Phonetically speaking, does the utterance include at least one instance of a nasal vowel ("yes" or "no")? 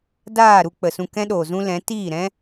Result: yes